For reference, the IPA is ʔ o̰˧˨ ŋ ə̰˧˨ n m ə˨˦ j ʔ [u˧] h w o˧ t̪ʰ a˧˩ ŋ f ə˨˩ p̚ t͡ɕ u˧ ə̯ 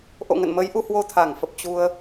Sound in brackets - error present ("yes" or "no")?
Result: no